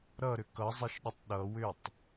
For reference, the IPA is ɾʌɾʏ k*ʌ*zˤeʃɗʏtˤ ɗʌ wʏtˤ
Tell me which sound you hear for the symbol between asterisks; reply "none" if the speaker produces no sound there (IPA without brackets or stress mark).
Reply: ʌ